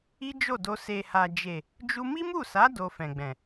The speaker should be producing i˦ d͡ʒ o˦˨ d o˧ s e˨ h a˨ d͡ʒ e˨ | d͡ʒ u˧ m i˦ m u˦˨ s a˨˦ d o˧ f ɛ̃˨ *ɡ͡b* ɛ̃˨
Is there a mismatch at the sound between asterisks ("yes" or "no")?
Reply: no